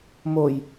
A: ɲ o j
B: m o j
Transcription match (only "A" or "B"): B